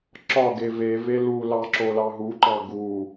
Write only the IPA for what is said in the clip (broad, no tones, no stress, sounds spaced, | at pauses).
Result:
ǁ ɒ ɡ e v e v e l u l ɑ ǁ o l ɑ ɦ u ǃ ɑ ɡ u